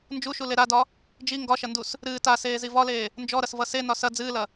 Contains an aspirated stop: no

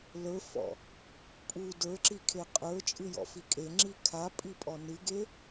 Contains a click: yes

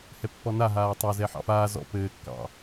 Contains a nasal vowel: no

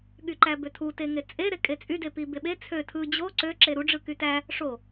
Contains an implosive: yes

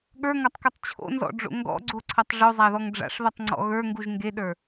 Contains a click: yes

